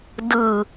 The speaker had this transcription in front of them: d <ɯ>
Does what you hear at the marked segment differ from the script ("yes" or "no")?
no